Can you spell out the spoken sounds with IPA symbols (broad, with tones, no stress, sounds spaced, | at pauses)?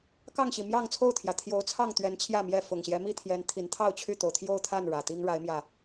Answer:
k ɑ˥˨ ŋ ɕ i˨˩ m j ɑ˥˨ ŋ t͡sʰ o˥˨ ʊ̯ t̪ʰ j ä˩ t̪ʰ j o˨˦ ʊ̯ t͡sʰ ɑ˥˨ ŋ t̪ ɥ ɛ˨˦ n t͡ɕʰ j ä˥˨ m j ɛ˥˨ f ʊ˨˩ ŋ ɕ j ɛ˦ m i˥˨ t̪ʰ j ɛ˨˦ n t̪ʰ i˨˦ n t̪ʰ ɑ˥˨ ʊ̯ t͡ɕʰ y˥˨ t̪ o˩ ʊ̯ t̪ʰ j o˥˨ ʊ̯ t̪ʰ a˥˨ n ɻ ä˨˩ t̪ i˦ ŋ ɻ a˨˦ ɪ̯ m j ä˨˩